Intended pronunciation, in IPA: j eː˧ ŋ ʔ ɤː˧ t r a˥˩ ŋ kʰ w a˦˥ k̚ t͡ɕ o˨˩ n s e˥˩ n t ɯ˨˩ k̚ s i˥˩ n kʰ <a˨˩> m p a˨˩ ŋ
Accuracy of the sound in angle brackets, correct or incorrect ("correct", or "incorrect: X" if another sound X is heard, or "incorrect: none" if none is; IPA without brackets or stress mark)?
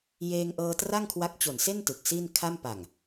incorrect: a˥˩